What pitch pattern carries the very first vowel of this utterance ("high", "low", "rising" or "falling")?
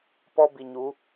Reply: high